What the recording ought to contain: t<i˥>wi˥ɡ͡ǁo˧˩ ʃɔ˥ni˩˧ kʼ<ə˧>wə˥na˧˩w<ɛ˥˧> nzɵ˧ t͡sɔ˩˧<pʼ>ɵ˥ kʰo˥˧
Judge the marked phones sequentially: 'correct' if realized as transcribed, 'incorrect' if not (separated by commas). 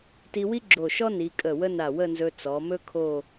incorrect, incorrect, incorrect, incorrect